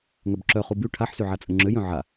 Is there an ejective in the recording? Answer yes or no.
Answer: yes